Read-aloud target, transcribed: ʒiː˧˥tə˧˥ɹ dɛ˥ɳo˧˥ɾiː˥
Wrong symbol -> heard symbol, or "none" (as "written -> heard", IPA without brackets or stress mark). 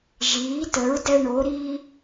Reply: none